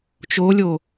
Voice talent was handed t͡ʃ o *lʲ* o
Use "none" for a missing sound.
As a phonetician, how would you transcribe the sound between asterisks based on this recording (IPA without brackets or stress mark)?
lʲ